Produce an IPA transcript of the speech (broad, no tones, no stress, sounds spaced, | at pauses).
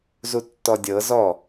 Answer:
z u tː ɔ dʲ ɤ z ɔ